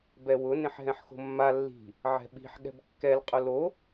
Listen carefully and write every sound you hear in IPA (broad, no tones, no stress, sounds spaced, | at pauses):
b ɛ w ʊ n ẽ ħ ɦ ɛ̃ ħ x o̤ mː a lː i̤ | ʕ ɛ̤ ɓ i̤ ħ ɠ ɛ̤ b kː ɛ l qʼ ʊ l o